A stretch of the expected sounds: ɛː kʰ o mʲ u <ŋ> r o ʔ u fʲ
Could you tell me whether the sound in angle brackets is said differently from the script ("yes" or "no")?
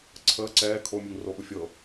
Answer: no